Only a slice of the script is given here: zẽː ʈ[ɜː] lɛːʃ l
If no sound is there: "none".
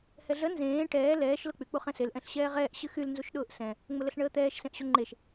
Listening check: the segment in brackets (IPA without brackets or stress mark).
ɛː